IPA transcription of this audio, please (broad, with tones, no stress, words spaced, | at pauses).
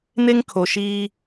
ne˦ŋkʰo˨ʃiː˦